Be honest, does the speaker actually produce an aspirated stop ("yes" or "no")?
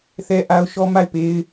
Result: no